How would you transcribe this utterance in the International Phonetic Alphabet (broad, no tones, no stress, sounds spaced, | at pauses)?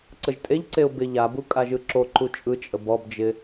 ǀ ə ʒ tʼ e ʎ ǀ e ʊ̯ b ɪ ʎ a b u kʼ a ʒ ɯ ǁ o ǃ u t͡ʃʼ ɯ t͡ʃʼ ə b ɔ b d͡ʒ ɪ